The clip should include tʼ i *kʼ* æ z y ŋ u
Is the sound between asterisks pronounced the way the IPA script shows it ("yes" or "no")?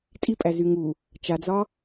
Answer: no